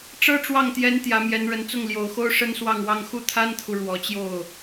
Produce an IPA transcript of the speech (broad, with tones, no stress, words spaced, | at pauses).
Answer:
ʈ͡ʂɤ˥ʈ͡ʂwɑ˥˩ŋt̪jɛ˧˥n t̪jä˧˥mjɛ˧˥nɻə˧˥n t͡sʊ˥˩ŋljo˨˩ʊ̯xo˥ʊ̯ ʂə˥nswɑ˥˧ŋwɑ˥˧ŋ xu˥˩t̪ʰa˥nt̪ʰu˨ ɻwɔ˧˥t͡ɕjo˥˩ʊ̯